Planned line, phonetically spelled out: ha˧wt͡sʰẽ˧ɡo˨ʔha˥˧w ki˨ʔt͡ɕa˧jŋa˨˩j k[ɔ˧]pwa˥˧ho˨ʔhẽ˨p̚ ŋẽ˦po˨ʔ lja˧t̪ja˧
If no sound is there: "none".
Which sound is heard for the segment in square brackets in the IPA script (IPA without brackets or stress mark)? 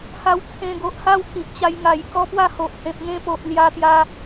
ɔ˦